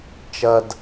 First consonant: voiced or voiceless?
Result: voiceless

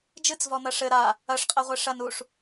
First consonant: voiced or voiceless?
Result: voiced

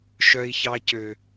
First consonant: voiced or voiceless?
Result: voiceless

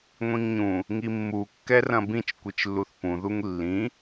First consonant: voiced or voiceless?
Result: voiced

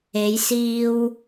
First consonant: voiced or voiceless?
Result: voiced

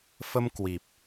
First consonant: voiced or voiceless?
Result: voiceless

